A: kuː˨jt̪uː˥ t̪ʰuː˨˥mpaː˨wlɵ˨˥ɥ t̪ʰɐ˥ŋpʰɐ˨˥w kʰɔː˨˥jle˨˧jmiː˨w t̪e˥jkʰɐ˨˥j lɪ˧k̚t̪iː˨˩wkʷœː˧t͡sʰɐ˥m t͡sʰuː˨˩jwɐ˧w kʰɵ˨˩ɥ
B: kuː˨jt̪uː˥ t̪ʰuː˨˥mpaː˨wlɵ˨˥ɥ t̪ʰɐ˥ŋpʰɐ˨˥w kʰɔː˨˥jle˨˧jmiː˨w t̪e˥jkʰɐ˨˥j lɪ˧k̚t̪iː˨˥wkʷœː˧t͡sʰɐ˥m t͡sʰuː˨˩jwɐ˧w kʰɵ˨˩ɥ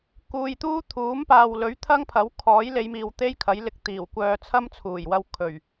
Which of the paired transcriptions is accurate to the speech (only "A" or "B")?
A